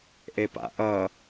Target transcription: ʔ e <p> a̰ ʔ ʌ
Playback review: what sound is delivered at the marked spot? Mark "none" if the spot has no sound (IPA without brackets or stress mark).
p